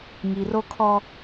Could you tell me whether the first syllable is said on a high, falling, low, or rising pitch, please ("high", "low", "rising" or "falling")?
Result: low